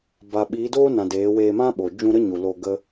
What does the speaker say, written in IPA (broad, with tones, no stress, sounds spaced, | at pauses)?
b a˨ ɓ iː˨˦ d oː˦ n ã˨ d eː˨˦ w eː˧ m ã˦ ɓ o˨ d͡ʒ ũ˧ ɾ ə˦ ɲ u˨ l o˧ ɡ ə˦